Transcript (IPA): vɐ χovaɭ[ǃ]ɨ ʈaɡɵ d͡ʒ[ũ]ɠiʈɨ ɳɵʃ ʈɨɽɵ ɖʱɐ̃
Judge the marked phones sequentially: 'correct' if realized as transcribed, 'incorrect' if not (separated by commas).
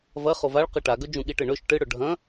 incorrect, correct